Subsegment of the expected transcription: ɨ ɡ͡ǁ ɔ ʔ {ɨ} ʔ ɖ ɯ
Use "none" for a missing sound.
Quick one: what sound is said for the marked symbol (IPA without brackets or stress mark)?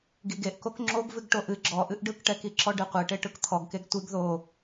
ɨ